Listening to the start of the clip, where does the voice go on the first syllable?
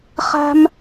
high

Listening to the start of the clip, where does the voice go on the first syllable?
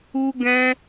high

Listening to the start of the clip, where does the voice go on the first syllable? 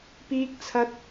high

